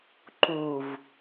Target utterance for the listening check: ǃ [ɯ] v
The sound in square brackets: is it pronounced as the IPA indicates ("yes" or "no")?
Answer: no